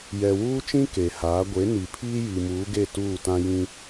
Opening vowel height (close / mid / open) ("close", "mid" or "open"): mid